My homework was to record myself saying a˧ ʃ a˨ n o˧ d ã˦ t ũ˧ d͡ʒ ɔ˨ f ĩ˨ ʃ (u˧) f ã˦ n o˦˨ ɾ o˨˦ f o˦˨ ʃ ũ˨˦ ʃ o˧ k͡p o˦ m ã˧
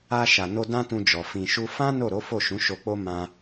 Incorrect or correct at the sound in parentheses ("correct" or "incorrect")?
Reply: correct